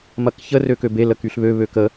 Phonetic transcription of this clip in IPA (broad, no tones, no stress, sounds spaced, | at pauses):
m ɐ k ç ə r ø k ø b e l ə k y ɬ β ø β ø k ə